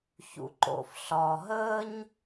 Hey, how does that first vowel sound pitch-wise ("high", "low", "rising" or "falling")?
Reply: low